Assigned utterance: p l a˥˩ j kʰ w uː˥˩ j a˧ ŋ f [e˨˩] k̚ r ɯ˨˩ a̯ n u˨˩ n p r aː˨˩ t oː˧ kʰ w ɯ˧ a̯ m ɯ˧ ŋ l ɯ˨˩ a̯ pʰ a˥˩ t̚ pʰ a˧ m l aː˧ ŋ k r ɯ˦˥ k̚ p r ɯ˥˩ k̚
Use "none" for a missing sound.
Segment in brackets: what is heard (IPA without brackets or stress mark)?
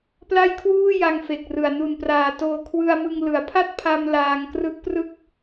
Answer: e˨˩